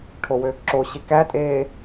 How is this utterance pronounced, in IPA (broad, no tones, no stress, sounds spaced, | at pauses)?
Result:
ʈʰ o w øː k ǁ o ɕ i k æ tʼ eː